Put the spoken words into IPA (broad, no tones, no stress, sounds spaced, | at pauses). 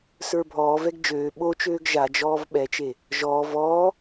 s ə˞ bʱ ɔː v ɛ ɡ d͡ʒ øː ɓ o t͡ʃ øː ɡ ʒ a d͡ʒ ɔː v ɓ ɛ t͡ʃ e | ʒ ɔː v ɔː